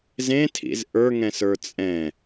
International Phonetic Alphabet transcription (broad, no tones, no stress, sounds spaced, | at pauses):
z ẽ tʰ ḭ z ʔ ə˞ ŋ ɛ̃ s ə˞ t͡sʼ ɛ̃